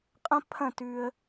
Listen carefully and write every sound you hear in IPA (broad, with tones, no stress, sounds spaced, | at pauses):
qʼ ɐ̃˦ pʰ ɐ̃˦˨ t ʉ˧ ə̯